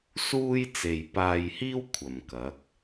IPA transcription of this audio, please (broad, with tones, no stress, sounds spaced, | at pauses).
s uː˥ j t͡s e˨ j p aː˧ j h iː˥ w kʷʰ ɐ˨ m k ɐ˨˥ k̚